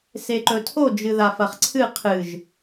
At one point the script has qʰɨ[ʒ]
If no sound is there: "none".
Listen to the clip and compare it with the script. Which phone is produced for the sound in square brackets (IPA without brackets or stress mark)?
ʒ